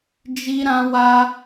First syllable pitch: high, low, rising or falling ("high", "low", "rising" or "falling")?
high